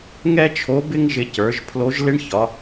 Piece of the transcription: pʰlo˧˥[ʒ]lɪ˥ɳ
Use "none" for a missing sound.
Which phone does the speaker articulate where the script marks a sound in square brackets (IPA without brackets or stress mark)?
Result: ʒ